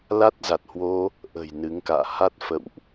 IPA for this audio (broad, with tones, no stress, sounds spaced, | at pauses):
l a˦˥ t̚ z a˨˩ t̚ h w o˧ | ʔ ə̤˨˩ j n ɨ˨˦ ŋ k a̰ː˧˨ h a˦˥ t̚ f ə̰˧˨ w ʔ